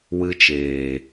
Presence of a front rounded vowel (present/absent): absent